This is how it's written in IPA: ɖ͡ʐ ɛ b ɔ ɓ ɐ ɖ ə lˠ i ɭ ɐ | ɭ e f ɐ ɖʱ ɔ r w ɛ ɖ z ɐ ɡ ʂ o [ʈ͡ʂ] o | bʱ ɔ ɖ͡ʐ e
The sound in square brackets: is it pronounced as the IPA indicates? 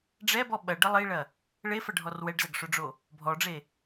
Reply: no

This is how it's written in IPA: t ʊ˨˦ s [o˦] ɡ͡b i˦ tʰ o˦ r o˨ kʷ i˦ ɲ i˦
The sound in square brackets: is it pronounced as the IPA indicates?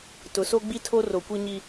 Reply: yes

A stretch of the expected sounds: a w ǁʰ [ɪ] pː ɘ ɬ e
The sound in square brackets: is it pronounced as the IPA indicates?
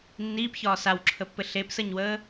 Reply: no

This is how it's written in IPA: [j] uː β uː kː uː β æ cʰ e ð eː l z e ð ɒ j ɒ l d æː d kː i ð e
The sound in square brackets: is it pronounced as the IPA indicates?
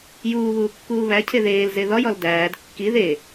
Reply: yes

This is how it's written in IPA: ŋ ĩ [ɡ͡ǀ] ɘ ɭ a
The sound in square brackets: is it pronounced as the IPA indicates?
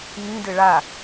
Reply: no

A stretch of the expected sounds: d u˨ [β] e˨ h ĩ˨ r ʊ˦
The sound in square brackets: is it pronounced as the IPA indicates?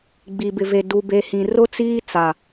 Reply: no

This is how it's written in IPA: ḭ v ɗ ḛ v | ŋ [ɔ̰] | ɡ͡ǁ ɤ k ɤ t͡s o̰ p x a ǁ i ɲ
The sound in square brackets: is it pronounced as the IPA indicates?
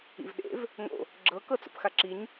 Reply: no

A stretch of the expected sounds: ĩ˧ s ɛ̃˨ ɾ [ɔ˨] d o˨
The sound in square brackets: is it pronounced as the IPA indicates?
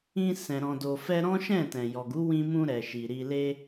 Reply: no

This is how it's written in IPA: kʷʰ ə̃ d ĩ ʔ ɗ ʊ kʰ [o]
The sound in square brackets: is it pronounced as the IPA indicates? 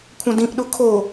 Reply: yes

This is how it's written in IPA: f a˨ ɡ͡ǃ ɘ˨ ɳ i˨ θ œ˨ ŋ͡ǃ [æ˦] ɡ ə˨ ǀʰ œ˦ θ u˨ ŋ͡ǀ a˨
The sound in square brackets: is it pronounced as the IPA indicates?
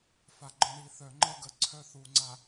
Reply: no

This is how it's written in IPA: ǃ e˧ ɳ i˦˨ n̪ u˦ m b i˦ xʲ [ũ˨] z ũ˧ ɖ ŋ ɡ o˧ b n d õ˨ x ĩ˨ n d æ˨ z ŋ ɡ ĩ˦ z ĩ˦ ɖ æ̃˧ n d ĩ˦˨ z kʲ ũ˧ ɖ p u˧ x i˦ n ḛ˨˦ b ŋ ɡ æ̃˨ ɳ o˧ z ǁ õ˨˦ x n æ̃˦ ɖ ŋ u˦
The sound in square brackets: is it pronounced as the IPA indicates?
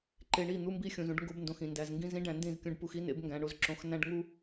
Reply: yes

